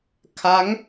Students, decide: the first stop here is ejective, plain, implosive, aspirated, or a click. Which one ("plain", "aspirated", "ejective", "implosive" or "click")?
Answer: aspirated